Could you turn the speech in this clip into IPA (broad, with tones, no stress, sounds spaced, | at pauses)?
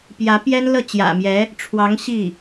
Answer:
p j ä˧˥ p j ɛ˥ n l ɤ˥˩ t͡ɕ j ä̰˨˩ m j ɛ˧˥ | ʈ͡ʂʰ w ɑ˧˥ ŋ ɕ i˥˩